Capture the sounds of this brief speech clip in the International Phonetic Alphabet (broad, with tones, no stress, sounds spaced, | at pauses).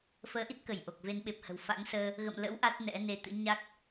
f əː˨˦ ʔ i˦˥ t̚ k ə˧˩ j ʔ o˨˩ k̚ v e˨˦ n ɓ e˨˩ p̚ h ə̤˨˩ w f a̰˧˥ ŋ s əː˧ | ɣ ə̰˧˨ m l ə̰˧˥ w ʔ a˦˥ t̚ n ɛ̰˧˥ n e˧ t̪ ɨ̰˧˥ ɲ a˦˥ k̚